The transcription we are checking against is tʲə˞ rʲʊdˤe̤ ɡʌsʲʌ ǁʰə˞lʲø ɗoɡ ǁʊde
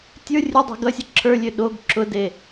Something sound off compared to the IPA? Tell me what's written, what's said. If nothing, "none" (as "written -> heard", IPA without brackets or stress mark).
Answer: none